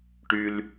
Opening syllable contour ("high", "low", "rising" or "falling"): high